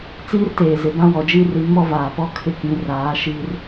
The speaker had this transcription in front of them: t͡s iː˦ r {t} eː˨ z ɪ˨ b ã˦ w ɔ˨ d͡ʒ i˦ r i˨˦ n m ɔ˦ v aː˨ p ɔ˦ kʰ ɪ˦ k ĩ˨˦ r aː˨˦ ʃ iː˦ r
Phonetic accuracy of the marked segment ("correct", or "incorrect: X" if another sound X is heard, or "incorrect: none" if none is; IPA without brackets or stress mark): correct